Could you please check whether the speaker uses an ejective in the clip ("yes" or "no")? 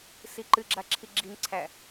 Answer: no